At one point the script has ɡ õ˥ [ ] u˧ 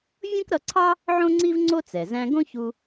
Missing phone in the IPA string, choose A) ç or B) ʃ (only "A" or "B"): A